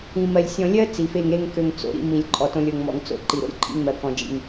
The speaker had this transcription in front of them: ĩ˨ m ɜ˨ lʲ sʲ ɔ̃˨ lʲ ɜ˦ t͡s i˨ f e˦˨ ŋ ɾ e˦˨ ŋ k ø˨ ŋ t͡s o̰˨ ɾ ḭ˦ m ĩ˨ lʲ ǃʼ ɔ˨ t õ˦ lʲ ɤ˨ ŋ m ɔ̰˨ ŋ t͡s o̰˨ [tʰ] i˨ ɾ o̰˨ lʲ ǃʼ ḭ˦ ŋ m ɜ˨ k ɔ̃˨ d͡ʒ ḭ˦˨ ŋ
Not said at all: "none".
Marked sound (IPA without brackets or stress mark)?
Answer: ǃ